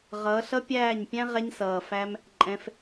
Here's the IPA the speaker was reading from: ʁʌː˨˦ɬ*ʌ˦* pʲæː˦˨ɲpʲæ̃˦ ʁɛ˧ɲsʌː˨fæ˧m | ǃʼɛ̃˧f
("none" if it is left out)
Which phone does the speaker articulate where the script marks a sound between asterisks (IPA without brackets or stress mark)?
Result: ʌ˦